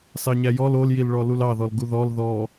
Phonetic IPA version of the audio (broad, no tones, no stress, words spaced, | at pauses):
sɑɲæjɔl oljilɭɔ lulɑðɔl ɡuðɔl ðɔ